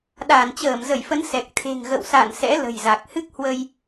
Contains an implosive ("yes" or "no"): yes